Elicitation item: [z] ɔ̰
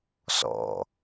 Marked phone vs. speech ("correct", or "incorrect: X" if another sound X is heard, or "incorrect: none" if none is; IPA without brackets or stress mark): incorrect: s